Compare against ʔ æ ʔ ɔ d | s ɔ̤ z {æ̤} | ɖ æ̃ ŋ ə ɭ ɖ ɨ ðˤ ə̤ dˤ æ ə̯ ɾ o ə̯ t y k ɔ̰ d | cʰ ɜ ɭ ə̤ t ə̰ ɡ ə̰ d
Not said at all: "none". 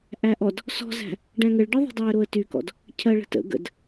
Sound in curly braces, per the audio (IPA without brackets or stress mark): æ̤